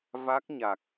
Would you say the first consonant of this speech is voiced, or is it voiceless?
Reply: voiced